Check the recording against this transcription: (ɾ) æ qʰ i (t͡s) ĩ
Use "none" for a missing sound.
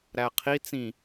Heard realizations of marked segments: ɾ, t͡s

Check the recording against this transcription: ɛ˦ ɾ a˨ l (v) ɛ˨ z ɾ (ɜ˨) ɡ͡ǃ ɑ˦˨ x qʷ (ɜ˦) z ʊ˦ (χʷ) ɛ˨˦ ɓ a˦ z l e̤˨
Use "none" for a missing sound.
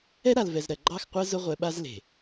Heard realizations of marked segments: v, ɜ˨, ɜ˦, ʁʷ

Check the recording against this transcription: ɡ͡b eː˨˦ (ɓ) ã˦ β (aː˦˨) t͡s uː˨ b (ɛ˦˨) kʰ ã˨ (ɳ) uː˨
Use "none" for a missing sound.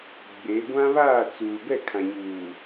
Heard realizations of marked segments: ɡʷ, aː˦˨, ɛ˦˨, ɲ

